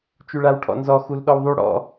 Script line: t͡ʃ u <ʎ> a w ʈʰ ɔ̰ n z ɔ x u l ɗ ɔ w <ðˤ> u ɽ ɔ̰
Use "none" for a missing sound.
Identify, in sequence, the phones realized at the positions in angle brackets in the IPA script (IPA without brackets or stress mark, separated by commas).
ɭ, ðˤ